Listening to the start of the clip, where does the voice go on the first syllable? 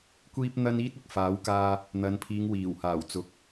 high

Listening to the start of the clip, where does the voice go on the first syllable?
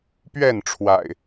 falling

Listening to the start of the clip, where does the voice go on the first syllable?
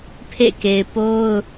falling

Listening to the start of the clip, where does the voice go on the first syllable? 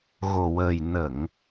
low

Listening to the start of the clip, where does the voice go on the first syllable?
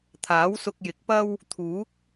rising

